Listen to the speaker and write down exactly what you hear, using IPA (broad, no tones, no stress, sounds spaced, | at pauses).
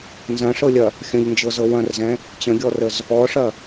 n z ɐ̃ ʂ ɤ lʲ ɐ | xʲ ə̃ ʎ n d͡ʒ ɤ z ɤ w ɐ̃ r z ɛ̃ | t͡ɕ ə̃ ɡʲ ɔ r ə z | ɔ ʂ ɐ